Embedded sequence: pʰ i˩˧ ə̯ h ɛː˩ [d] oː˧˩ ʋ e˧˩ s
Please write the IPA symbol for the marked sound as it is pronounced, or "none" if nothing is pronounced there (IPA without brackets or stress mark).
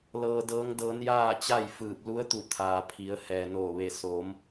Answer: n